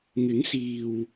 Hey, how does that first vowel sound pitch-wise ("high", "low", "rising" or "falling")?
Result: rising